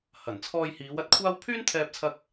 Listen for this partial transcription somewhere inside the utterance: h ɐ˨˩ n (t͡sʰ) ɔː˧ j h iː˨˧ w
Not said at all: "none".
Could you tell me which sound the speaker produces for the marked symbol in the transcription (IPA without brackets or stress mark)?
t͡sʰ